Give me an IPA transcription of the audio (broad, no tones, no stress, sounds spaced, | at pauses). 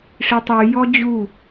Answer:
ʂ i tˤ y j ɔ d͡ʑ u